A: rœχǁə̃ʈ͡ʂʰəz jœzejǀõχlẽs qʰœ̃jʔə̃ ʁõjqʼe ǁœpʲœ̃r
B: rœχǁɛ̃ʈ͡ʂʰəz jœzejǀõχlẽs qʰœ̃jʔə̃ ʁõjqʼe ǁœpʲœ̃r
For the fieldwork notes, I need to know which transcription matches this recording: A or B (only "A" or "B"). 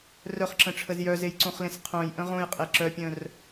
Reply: A